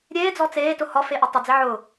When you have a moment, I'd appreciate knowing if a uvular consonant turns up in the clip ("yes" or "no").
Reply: no